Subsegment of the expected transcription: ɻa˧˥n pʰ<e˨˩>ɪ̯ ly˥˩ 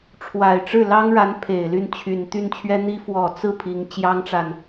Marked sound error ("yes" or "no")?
no